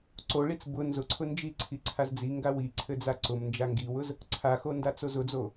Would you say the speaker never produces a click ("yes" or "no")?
no